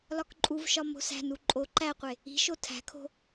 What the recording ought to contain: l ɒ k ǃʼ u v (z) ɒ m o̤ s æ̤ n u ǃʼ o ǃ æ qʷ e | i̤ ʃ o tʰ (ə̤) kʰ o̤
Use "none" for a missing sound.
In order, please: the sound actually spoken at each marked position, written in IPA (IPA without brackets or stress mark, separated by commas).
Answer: ʃ, æ̤